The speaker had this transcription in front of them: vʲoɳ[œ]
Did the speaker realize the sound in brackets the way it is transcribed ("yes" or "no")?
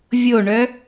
yes